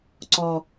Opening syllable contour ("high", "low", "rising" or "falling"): low